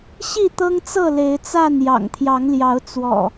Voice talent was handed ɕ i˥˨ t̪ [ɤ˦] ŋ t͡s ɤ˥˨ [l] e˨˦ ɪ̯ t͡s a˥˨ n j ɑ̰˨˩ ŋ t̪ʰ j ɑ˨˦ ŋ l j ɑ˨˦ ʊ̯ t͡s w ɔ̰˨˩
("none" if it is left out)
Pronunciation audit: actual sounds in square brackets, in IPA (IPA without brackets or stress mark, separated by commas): ɤ˦, l